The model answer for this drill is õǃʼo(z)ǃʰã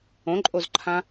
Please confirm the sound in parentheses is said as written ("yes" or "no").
yes